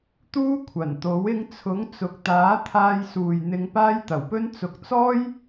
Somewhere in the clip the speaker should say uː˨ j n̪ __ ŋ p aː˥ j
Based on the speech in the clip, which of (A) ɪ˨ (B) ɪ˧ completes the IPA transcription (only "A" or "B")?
B